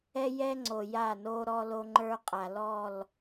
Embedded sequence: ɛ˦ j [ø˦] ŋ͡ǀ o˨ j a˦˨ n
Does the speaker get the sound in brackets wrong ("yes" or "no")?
yes